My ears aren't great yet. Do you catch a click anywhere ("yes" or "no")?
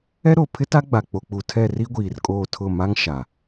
no